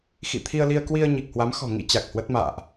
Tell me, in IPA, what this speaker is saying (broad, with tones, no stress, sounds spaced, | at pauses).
x ḭ˧˨ t̪ʰ i˧ ə̯ l i˧ ə̯ k w i˧ ə̯ ɲ i˨˩ k̚ h w a˨˦ m x ɔ̤˨˩ ŋ ḭ˧˥ t͡ɕ a˨˩ k̚ h w ə˦˥ t̚ m a̰ː˧˨ ʔ